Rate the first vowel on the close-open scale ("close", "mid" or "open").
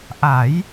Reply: open